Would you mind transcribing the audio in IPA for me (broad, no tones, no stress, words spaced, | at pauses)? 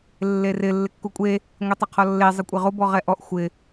lːerɪ lːɪkːukʷʼe | ŋʷitˤeqʰɔlːe zˤɪkʷʼeʁo bɔʁɛʔɔʔ xʷɪ